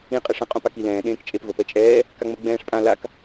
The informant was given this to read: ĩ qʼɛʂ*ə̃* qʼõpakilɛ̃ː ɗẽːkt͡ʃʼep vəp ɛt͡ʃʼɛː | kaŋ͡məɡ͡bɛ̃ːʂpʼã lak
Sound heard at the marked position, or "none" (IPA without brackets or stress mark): ə̃